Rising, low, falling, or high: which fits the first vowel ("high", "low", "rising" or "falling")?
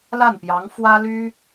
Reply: falling